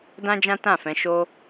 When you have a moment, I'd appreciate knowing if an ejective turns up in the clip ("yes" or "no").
no